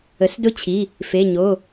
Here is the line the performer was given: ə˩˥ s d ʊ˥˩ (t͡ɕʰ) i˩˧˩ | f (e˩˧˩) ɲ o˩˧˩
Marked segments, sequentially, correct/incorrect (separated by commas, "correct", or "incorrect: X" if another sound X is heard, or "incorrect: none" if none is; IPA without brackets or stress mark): correct, correct